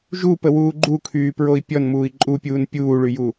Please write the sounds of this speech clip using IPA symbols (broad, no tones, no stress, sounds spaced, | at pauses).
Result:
ʒ u p ə w uː ɡ͡ǃ u kʰ yː p ɹ o i̯ pʲ ɔ n m uː i̯ ǃʼ u pʲ uː n pʲ uː ɭ y j u